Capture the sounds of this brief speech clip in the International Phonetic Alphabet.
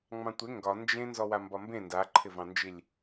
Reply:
ŋ͡m ɑ̃ tʷ ɪ ŋ ɡ ɒ n d͡ʒ ẽ n z ɔ w a m b ɒ m b ẽ n d a ǃʰ ɪ v ɑ̃ n d͡ʒ i lʲ

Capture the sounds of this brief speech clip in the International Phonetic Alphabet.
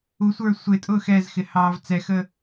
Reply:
u sʷ ə˞ sʷ ɪ tʼ ʊː x ɛ z x ɪ h ɑː v t͡s ɛ x ə

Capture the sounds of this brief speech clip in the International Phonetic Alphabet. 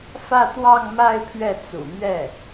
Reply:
f ä˥˧ t̪ w ɑ˥˧ ŋ m a˥˧ ɪ̯ pʰ ɥ ɛ˥˩ t͡s ṵ˨˩ m ɥ ɛ˥˩

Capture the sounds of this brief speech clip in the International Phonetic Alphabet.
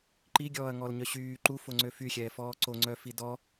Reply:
ǃ i ɡʲ ɔː ɐ̯ ŋ ɔ l ɲ œ ɕ yː ǃ u f o ŋ͡ǀ ø f y xʲ ɛː f ɔː ǀ o ŋ͡ǀ œ f i d ɔ

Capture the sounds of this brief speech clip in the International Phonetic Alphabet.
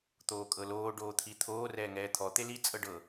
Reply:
t̪ oː kʼ ɤ l oː ɖ oː t̪ʰ i t̪ʰ oː r ɛː ŋ ɛː t̪ʰ ɔ t̪ e l i t͡sʼ ɤ ɖ ɤ

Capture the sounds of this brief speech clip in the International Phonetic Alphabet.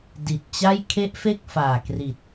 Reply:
d i˨˩ t̚ t͡ɕ a˥˩ j kʰ e˦˥ ʔ f e˥˩ k̚ f aː˨˩ k r i˨˩ t̚

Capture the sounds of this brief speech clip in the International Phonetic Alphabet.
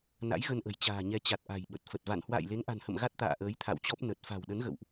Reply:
n a̰˧˥ j ɣ ə˧ n ʔ ə̤˨˩ j t͡ɕ a̤ː˨˩ ɲ ɛ˨˦ t͡ɕ a˨˩ t̚ ʔ a̤˨˩ j ɓ ə˨˩ t̚ f ə˨˩ t̚ v a̰˧˨ n h w a̰ː˧˨ j l e˨˦ ŋ ʔ a̤˨˩ n h ə̰˧˨ m ɣ a˦˥ t̚ t̪ a̰ː˧˨ ʔ əː˨˦ j t̪ʰ a̰˧˨ w t͡ɕ ɔ˦˥ p̚ n ə˨˩ t̚ f a̤˨˩ w ɗ ə˨˦ n ɣ ə̰˧˨ w ʔ

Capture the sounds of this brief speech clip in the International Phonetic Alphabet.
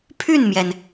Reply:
pʰ y˥˩ n m j ɛ˩ n

